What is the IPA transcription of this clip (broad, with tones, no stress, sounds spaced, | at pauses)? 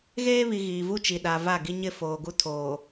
ɣ eː˦ β i˨ ɣ iː˨ v u˦ t͡ʃ i˨ ɗ a˨ v a˦˨ ɡ i˦ ɲ ɪ˦ f oː˨ ɡ u˦ tʰ oː˨